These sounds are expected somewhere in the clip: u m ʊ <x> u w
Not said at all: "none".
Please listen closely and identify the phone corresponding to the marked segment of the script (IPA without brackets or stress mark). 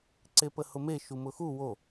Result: x